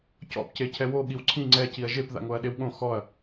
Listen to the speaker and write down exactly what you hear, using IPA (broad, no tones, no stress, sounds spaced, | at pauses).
c ɔ̰ p c e cʰ ɛ w o ɠ i w ǀʰ ĩ ŋ͡ǀ ɛ c i ɐ̯ ʒ e p ð a̰ ŋ o ɐ̯ ɗ e w ɠ õ x ɔ ɐ̯